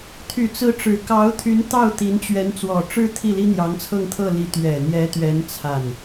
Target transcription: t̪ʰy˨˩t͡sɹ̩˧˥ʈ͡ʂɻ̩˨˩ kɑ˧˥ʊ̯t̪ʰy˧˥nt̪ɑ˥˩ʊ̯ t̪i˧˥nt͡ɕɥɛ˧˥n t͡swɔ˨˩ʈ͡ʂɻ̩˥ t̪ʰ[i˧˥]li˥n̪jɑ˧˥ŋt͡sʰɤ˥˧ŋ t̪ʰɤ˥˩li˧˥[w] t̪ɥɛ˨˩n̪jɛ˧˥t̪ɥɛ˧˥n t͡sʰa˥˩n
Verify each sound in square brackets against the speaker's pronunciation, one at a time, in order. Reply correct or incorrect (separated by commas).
incorrect, incorrect